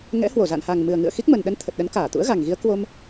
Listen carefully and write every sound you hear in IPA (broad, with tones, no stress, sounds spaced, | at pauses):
ŋ ɛ̰˧˥ h w o˧˩ z a̰˧˨ n h a˨˩ ŋ m ɨ˨˩ ə̯ ŋ ɨ̰˧˨ ə̯ x i˦˥ k̚ m ə˨˩ n ɗ ə˧ n t̪ʰ ə˨˩ t̚ ɗ ə˨˦ n k aː˧˩ t̪ ṵ˧˥ ə̯ ɣ a˨˩ ŋ ɣ i˨˦ ə̯ k w o˧ m